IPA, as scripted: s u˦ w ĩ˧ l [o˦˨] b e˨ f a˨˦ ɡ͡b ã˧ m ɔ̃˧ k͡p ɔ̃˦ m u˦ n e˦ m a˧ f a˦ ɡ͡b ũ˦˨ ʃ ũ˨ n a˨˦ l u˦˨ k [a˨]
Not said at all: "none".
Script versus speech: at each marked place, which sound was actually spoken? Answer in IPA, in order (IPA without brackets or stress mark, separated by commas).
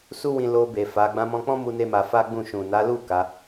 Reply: o˧, a˨˦